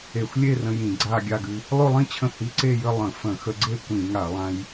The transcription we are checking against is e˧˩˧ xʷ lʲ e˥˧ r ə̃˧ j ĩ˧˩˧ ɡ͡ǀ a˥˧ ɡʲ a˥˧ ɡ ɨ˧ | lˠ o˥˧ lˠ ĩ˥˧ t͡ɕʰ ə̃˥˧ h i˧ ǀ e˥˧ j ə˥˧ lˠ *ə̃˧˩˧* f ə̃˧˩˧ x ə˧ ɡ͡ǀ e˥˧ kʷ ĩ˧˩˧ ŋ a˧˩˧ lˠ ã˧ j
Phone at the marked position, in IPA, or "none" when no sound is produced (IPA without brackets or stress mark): ə̃˧˩˧